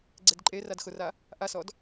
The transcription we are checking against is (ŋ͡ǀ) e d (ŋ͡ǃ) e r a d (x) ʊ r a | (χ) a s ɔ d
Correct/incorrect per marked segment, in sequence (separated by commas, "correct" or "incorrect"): incorrect, incorrect, correct, incorrect